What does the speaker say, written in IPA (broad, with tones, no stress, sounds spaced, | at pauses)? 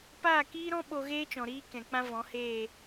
p aː˦˨ k iː˦ ɾ ɔ̃˦ ɓ o˧ ɣ eː˦ t͡ʃ ɔ̃˨ ɾ iː˦ k ɛ̃˨ k͡p ã˦ v ɔ̃˨˦ h eː˦˨